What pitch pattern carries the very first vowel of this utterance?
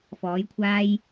rising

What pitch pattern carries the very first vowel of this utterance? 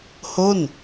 falling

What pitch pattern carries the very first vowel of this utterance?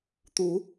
rising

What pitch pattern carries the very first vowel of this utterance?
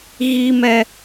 high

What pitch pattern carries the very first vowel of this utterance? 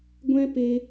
high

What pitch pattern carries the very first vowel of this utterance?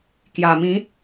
low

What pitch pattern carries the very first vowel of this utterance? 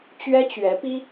high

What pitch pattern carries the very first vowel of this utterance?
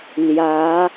rising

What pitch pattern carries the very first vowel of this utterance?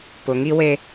low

